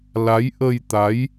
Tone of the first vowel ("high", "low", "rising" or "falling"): rising